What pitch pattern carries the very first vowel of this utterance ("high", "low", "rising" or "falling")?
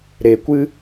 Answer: low